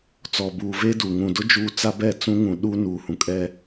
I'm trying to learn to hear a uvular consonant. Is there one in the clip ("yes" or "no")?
no